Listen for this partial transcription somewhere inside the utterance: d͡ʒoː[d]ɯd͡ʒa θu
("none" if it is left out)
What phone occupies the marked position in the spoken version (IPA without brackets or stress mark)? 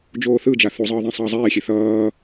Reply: θ